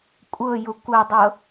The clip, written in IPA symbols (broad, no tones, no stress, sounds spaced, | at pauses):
kʷʼ ɤ j ʊ kʷ ɐ dˤ ɤ